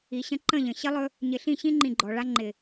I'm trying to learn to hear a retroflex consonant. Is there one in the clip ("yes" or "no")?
yes